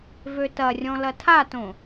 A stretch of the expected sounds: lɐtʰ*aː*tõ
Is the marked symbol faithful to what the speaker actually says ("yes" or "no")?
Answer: no